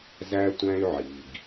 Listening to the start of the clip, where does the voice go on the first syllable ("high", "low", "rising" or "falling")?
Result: high